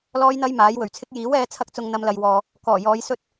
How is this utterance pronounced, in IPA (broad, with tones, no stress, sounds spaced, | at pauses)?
l ɔː˥ j n̪ ɐ˥ j m aː˨˥ j w ɵ˨˩ ɥ t͡sʰ ɪ˥ k̚ j iː˨˥ w ɛː˧ t͡sʰ ɐ˥ k̚ t͡s ʊ˧ ŋ n̪ ɐ˧ m l ɐ˨ j w ɔː˨ | k ɔː˨˩ j ɔː˨˧ j s ɵ˥ t̚